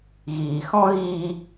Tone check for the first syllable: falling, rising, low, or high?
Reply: low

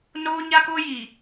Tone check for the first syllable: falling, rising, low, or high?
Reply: high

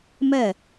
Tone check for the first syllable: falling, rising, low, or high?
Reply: falling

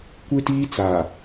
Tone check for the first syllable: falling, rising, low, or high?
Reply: high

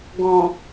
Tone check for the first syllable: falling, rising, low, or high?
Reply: low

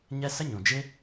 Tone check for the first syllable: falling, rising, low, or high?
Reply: high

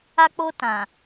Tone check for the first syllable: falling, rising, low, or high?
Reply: high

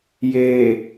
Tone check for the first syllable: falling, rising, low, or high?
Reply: low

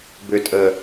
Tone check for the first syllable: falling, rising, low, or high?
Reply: low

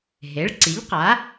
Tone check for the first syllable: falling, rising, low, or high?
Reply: rising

